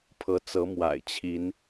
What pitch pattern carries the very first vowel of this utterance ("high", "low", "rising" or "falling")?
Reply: rising